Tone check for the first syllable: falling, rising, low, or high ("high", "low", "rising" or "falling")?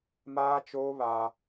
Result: high